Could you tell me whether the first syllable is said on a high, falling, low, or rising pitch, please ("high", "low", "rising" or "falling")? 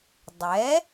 rising